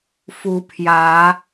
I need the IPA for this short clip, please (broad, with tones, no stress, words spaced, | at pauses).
fu˨˦pʰjä˨˦